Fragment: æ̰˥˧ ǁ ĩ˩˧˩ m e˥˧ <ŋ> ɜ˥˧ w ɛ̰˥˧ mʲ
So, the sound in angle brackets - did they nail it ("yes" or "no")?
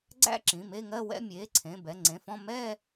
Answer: yes